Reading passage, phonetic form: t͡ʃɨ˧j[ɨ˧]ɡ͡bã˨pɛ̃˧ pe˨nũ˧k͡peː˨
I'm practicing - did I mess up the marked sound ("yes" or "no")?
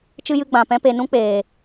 no